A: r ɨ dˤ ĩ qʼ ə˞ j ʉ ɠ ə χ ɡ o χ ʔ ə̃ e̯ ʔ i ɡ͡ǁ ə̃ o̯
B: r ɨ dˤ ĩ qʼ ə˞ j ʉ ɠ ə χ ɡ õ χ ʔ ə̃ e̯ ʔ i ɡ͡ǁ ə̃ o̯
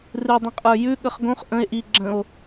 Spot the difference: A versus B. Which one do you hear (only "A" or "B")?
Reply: B